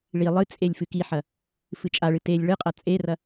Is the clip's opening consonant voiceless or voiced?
voiced